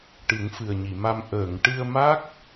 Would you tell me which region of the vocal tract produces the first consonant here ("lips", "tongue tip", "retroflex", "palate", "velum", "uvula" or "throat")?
retroflex